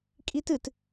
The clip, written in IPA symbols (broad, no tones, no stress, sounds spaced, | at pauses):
kʼ i t ɨ t